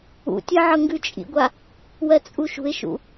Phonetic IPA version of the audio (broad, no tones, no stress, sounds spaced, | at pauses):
ṵ tʲ ɜ ʕ ɤ ŋ ɡ ʉ t͡ʃʼ ḭ ɡʷ a | w ɜ t͡sʼ u ʃ ṳ ɪ̯ ʃ ṵ